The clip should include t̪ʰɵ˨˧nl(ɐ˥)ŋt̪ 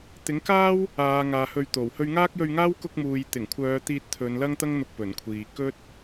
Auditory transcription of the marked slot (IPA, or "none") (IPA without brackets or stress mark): ɐ˥